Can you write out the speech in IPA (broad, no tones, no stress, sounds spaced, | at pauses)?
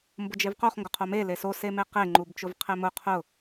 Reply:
m b ʊ d͡ʒ e v q o χ ŋ ɡ ʊ qʰ o m e l e s o s e m e q e ŋ͡ǃ u b t͡ʃ ʊ v qʰ e m ʊ qʰ ʊ